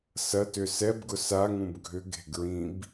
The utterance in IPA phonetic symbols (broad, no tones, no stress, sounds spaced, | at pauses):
s ɐ t ʏ s ɛ b ɡ ʊ s a ŋ ũ b ɡʱ ʏ ɡ e̤ ɡ ɹ ĩ b